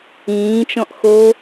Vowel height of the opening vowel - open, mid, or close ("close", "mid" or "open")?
close